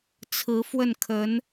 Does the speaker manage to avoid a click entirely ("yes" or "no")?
yes